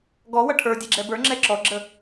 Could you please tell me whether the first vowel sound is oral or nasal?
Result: oral